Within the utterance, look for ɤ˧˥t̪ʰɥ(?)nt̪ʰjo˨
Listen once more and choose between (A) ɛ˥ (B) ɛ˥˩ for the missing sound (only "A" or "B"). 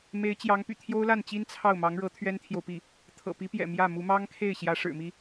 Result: A